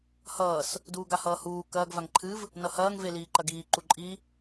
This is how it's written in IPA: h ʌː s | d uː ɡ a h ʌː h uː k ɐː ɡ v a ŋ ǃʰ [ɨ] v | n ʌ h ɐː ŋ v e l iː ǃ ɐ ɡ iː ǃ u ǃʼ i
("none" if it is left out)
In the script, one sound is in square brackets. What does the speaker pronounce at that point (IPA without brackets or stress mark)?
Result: ɨ